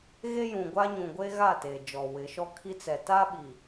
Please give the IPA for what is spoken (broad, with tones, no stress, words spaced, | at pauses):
ɣe˦jũ˨ɡʷa˦ɲũ˨ ɡʷe˦ɣa˦˨ teː˨d͡ʒɔ˨wɪ˨˦ʃɔ˦ kʰi˦t͡sɛ˨ ta˦ɓi˨